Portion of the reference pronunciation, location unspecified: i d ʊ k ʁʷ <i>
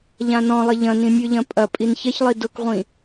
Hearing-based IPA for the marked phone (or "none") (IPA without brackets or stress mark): ĩ